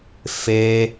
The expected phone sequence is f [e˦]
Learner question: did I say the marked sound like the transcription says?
no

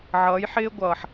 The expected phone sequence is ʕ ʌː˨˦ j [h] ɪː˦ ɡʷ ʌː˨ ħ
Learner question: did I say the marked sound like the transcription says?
no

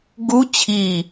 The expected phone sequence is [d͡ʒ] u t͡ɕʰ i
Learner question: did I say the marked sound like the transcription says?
no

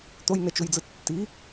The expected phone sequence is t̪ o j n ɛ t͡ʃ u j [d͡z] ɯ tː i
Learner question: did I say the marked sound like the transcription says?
yes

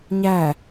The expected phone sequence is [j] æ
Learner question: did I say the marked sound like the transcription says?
no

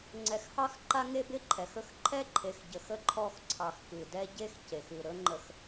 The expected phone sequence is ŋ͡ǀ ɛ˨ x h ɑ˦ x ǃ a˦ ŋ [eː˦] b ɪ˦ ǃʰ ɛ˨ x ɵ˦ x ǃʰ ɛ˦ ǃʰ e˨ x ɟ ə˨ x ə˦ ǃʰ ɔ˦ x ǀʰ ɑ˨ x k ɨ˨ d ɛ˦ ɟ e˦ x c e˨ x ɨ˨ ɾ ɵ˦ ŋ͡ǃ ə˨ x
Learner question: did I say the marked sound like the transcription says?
no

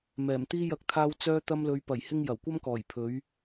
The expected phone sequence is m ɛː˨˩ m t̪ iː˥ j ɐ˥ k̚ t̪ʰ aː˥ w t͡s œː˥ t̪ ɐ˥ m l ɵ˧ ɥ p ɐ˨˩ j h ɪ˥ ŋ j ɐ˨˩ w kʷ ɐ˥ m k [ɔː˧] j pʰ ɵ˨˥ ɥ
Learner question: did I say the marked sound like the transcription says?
no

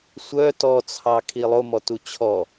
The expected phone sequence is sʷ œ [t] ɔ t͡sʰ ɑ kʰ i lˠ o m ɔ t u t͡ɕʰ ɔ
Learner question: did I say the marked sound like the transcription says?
yes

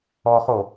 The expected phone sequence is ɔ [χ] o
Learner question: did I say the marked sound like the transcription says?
yes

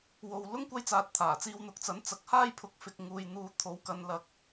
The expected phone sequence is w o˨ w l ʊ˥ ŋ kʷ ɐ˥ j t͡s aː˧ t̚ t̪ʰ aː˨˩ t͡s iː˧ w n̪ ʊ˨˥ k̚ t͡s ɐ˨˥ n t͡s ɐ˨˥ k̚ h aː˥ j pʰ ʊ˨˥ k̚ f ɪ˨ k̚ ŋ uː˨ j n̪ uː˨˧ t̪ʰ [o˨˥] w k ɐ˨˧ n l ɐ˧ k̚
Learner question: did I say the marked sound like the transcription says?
yes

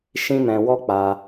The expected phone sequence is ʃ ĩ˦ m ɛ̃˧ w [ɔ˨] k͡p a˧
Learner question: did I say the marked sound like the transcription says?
no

